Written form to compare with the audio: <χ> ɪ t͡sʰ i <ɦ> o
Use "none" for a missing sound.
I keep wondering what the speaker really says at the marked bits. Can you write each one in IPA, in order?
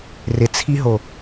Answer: r, ɦ

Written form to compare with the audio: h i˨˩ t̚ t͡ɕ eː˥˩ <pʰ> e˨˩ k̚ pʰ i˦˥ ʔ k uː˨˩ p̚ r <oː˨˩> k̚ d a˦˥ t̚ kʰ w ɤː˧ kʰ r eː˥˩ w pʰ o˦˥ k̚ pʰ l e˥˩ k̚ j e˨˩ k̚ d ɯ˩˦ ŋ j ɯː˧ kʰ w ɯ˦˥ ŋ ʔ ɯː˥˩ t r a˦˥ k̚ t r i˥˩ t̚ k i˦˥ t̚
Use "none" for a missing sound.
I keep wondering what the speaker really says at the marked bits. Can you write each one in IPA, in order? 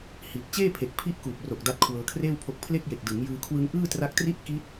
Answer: pʰ, o˨˩

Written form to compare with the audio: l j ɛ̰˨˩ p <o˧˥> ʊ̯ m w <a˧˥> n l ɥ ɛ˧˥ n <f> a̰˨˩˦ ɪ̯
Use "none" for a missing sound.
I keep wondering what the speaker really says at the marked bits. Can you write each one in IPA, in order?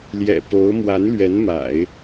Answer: o˧˥, a˧˥, m

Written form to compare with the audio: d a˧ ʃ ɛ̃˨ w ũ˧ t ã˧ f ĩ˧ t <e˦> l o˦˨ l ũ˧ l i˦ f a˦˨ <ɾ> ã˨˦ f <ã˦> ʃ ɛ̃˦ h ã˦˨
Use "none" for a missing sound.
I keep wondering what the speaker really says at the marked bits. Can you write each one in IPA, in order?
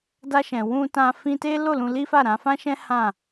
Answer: e˦, ɾ, ã˦

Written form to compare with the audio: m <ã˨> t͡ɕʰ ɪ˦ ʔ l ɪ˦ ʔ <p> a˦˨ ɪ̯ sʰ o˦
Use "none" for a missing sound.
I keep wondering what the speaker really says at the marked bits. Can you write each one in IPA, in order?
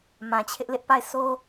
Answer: ã˨, p

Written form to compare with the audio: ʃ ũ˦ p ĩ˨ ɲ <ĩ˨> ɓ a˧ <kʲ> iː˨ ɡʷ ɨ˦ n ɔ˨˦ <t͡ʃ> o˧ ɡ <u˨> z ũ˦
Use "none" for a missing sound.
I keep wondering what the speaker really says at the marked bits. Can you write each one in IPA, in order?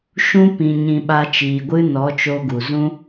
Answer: ĩ˨, t͡ʃ, t͡ʃ, u˨

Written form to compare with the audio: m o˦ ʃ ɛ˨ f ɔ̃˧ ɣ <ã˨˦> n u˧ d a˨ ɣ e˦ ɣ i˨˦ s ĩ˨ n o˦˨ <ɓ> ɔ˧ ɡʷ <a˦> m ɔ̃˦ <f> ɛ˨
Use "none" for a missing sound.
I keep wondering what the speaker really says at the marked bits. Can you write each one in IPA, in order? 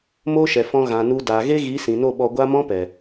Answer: ã˨, ɓ, a˦, p

